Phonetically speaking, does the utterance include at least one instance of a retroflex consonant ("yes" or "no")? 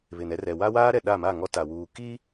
no